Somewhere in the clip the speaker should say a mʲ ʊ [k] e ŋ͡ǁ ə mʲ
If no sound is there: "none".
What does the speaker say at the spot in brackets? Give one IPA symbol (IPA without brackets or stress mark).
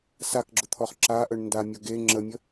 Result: ɡ